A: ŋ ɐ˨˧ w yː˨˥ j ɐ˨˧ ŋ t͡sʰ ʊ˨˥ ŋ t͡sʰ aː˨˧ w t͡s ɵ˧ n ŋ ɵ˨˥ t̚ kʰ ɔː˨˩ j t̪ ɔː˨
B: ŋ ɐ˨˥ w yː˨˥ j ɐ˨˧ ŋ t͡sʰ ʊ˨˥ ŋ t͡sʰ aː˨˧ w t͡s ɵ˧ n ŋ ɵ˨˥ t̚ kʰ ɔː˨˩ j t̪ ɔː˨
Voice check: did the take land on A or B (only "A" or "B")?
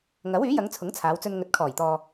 B